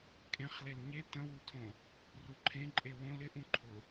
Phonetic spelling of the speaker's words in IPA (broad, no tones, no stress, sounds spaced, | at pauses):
kʼ ẽ χ l e l ɲ e t ə̃ w u tʰ õ | r u ǃʰ ẽ ǃʼ e w õ l ɪ ʔ ũ ǃʰ ʊ